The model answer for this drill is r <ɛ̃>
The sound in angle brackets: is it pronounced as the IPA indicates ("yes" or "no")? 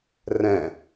yes